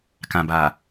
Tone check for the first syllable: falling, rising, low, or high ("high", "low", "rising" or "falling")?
low